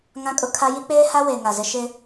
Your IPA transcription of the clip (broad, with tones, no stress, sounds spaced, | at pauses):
ŋ ã˦ kʼ ʊ˦ kʰ a˦ j i˦ k͡p eː˦ h a˦ w e˨ ŋ a˨ z ɪ˦ ʃ ɪ˦